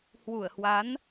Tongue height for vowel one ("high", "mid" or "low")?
high